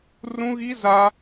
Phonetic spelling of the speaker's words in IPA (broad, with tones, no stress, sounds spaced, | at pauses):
r ũ˦ ɣ i˦ z a˦